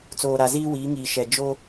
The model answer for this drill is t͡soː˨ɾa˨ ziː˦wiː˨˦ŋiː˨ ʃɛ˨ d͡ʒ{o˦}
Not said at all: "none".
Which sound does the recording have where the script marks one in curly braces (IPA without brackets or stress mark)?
o˦